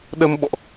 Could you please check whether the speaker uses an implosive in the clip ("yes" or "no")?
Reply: yes